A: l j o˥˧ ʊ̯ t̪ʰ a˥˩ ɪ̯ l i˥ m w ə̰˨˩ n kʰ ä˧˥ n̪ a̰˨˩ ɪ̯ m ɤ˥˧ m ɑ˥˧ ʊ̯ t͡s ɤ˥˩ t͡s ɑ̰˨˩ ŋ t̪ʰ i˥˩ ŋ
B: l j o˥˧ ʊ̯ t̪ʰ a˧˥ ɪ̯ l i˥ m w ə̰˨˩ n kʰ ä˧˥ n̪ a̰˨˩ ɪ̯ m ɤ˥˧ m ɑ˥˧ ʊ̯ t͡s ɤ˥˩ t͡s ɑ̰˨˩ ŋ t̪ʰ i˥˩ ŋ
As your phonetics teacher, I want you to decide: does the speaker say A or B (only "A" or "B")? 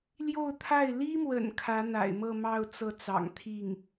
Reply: A